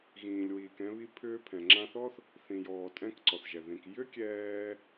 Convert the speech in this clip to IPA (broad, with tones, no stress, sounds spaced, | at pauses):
ɣ ĩː˩ lʲ w iː˩ k ɛ̃˧ β i˧ pʰ ʏː˧ pʰ ɛ̃˩ ŋ͡ǁ ã˧ θ ɔ˥ θ | θ ĩ˩ j ɔː˩ tʼ ɛ̃˧ k ǀ ɔ˩ θ ʒ ɛ˩ ð ĩ˩ k j ʏ˥ kʲ ɛː˧